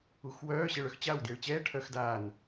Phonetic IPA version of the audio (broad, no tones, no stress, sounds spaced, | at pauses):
u x w œː ɕ e ɭ œ x t͡ɕ a w d j e ɭ t͡ɕ ɛː ʈʰ œː x d aː n